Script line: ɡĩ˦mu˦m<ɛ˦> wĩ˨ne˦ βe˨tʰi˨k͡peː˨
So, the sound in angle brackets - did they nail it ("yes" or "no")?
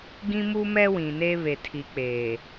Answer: yes